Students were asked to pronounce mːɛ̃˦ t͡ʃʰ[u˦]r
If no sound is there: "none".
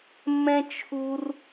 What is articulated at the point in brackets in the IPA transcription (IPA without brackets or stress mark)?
u˦